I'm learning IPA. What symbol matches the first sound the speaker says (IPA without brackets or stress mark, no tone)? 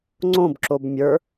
ŋ͡ǀ